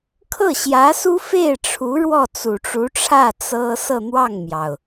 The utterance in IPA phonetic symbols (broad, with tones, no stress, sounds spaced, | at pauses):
kʰ ɤ˥˩ ɕ j ä˧˥ s u˥ f e˥˩ ɪ̯ ʈ͡ʂʰ u˧˥ ɻ w ɔ˥˩ t͡s u˨˩ ʈ͡ʂ u˧˥ ʈ͡ʂʰ ä˥˩ t͡s ɤ˥ s ɤ˥˧ n̪ w ɑ˥˩ ŋ m j ɑ˩ ʊ̯